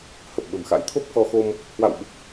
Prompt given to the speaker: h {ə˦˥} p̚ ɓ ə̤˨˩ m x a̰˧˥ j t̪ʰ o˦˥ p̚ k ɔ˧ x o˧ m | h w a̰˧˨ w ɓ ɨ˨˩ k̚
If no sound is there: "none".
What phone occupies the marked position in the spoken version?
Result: ə˨˩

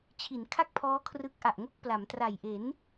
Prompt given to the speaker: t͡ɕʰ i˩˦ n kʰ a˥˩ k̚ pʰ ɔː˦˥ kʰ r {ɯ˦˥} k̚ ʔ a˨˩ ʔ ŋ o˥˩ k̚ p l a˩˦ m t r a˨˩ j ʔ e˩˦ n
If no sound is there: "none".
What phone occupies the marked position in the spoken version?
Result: ɯ˦˥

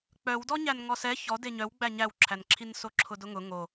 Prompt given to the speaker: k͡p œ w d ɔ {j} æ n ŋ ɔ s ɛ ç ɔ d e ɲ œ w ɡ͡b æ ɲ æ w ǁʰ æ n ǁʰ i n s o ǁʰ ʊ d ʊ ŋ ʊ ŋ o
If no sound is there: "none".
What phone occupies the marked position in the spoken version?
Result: ɲ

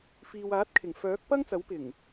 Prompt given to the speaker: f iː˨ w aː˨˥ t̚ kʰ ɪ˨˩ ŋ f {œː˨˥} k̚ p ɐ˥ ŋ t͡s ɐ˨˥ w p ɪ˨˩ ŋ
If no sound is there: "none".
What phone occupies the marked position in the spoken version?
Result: œː˨˥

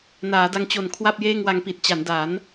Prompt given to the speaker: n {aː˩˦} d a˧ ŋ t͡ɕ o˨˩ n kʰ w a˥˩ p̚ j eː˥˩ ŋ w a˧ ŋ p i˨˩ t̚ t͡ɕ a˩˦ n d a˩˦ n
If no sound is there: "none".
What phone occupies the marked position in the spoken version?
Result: aː˩˦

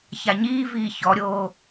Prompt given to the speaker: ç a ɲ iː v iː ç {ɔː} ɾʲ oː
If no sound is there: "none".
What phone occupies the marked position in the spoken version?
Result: ɔ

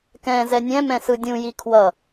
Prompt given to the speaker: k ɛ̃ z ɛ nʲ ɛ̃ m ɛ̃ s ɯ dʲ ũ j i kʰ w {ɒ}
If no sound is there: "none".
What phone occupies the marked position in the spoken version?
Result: ʌ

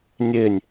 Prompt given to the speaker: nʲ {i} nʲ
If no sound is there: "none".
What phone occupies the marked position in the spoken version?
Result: e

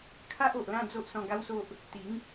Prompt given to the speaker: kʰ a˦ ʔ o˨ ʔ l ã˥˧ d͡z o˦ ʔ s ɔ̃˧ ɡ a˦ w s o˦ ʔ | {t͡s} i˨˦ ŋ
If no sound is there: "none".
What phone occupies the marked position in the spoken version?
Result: t̪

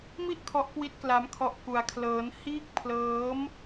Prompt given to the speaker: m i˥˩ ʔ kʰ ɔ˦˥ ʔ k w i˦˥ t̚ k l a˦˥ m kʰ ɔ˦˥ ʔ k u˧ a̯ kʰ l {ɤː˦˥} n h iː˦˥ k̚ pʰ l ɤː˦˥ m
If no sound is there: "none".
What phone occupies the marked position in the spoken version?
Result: ɤː˦˥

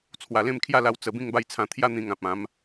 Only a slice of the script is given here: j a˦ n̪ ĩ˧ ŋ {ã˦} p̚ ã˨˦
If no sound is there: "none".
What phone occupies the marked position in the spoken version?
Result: ã˨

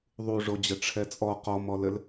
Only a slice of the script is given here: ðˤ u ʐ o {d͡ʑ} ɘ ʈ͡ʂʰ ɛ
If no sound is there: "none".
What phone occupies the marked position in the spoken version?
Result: d͡ʑ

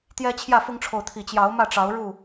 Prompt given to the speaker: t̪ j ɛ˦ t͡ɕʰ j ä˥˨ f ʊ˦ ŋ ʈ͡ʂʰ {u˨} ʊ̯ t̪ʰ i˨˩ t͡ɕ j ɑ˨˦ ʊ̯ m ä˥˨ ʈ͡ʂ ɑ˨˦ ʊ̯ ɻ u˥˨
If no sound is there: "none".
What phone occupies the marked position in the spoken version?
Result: o˨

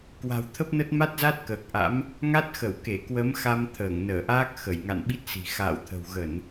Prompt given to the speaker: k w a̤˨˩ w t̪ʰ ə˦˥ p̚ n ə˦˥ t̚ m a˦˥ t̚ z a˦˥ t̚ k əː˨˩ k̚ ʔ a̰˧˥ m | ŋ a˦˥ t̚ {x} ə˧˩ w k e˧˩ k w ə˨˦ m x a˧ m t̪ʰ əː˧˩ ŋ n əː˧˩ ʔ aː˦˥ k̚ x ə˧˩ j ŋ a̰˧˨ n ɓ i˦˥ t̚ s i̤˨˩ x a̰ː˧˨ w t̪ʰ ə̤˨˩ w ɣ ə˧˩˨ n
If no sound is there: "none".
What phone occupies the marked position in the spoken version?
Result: x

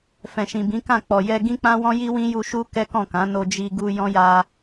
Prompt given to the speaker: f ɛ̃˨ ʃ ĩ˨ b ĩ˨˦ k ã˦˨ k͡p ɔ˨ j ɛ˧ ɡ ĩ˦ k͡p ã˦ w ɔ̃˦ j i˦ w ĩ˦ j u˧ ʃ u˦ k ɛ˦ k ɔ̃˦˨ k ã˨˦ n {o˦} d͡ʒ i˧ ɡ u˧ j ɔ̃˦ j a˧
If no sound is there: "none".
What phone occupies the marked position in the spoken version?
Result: o˧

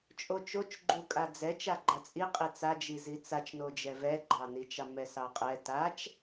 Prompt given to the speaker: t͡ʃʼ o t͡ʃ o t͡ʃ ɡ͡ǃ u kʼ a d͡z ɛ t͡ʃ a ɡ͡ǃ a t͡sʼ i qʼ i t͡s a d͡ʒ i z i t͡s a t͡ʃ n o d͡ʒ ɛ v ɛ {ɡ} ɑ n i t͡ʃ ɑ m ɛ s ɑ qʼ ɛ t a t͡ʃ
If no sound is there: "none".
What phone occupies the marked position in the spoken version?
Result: ɡ͡ǃ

